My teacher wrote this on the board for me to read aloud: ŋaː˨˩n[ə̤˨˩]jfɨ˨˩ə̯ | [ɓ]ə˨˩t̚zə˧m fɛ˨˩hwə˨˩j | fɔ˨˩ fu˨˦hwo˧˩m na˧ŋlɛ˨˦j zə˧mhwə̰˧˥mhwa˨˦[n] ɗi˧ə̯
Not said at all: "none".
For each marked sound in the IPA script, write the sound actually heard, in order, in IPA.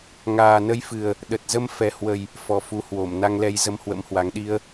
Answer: ə˧, ɗ, ŋ

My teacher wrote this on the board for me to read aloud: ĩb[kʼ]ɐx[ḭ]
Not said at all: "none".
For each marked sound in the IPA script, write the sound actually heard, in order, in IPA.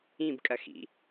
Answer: kʼ, ḭ

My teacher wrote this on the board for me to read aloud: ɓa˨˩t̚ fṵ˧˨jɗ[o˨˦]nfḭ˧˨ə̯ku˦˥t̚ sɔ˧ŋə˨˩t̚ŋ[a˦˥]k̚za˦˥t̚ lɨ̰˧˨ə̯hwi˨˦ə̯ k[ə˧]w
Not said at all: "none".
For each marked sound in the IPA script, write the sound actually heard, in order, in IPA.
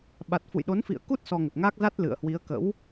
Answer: o˨˦, a˦˥, ə̰˧˥

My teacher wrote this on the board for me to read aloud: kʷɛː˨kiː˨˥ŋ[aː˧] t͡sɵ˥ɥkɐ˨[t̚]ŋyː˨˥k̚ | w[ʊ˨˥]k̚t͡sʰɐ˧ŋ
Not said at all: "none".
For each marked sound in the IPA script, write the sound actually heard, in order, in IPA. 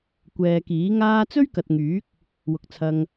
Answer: aː˥, t̚, ʊ˨

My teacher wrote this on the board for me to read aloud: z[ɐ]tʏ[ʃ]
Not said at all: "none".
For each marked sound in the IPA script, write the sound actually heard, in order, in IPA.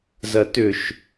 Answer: ɐ, ʃ

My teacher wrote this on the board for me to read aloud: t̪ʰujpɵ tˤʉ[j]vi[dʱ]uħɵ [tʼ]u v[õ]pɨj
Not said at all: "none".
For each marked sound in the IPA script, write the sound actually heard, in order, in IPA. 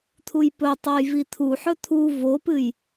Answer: j, t̪ʰ, t̪ʰ, o

